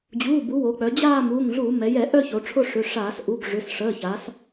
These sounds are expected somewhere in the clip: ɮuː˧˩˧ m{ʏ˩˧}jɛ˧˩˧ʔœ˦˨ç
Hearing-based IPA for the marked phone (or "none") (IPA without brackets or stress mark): ɛ˩˧